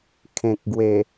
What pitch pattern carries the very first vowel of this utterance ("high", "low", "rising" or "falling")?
low